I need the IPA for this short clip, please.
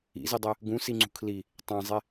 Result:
ḭ z i dˤ ɛ | ɡ ũ s i ŋ͡ǀ ṳ kʰ l i | tˤ ã zˤ e

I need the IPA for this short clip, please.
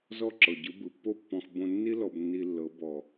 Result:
z ɔ˥˩ ǁ ɤ˩ ɟ ɯ˩˥ b ɯ˩ pː o˥ pː ɔ̃˧ x b õ˧ nː i˥ l ɔ˧ b nː i˧ lː ɤ˩˥ b ɔ˩

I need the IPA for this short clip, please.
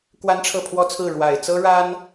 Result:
k w a˥ n ʈ͡ʂʰ ɤ˥˩ pʰ w ɔ˥ t͡sʰ ɹ̩˥˩ ɻ w a˨˩ ɪ̯ t͡s ɤ˥ ɻ a˥ n

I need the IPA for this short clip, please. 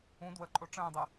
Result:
ũ d w ə ǃʼ o ʈ͡ʂ ə̃ː dˤ ɨ

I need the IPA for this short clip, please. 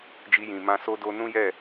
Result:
d͡ʒ i˧ j ĩ˨ m ã˧ s o˦ d o˦ n ũ˦ j ɛ˦˨

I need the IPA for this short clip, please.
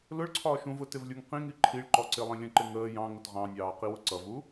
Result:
l ʊ ɭ ǀʰ ɒː ʃ ũ v ʊ t ɪ v lʲ u ŋ q ĩ ŋ i ǃʰ i ɭ ǃ ɔ ǀ ɪ lˠ ĩ lʲ ə̃ ǃ ɪ ŋ əː j ɑ̃ ŋ ʊ t ʁ ɑ̃ nʲ ɑː q i w ʊ ǀ ʌ v u

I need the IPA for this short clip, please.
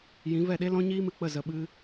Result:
j ĩ˨˦ v ɛ˦˨ ɗ e˦ l ɔ̃˦ ɲ iː˦ m ɨ˧ k͡p ə˦˨ z ə˧ ɓ ɨ˦

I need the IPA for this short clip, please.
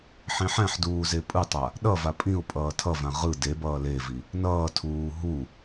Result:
ħ ĩ ħ ɛ̃ ħ d uː z e pʼ ɯ tˤ a | ɗ ʌ v a pʼ ĩ ʊ̯ pʼ ʌː tʰ ʌ v ã ʁ ɯ d e b ʌː l e v i | n ʌː tʰ uː ɦ u

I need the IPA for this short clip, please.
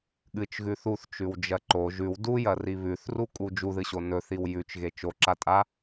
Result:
ɠ ɨ t͡ʃ ɣ ʉ θ u θ t͡ʃ ʉ w d͡ʒ ɐ ǃ o ʒ ʉ w d u j ɐ r i β ʉ θ r u kʼ u d͡ʒ u ð ɨ ɕ o n ɵ θ i w j ʉ t͡ʃ ɣ e t͡ʃ o ǁ a tʼ a

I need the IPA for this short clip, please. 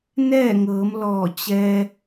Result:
n ɛː˥˨ ŋ ɤː˩˧ m l ɔː˧˩ t͡ɕ ɛː˧

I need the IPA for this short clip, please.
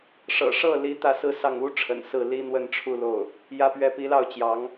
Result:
ʂ ɤ̰˨˩ ʂ ɤ˥˩ l i˧˥ t̪ ä˥˧ s ɹ̩˥˧ s ɑ˥˩ ŋ u˥ ʈ͡ʂʰ ə̰˨˩ n s ɹ̩˥˩ l i˥ n̪ w ə˥˧ n ʈ͡ʂʰ u˥˧ l o˥˩ ʊ̯ | j ä˥ p ɥ ɛ˥˩ p i˧˥ l ɑ˥˩ ʊ̯ t͡ɕ j ɑ˧˥ ŋ

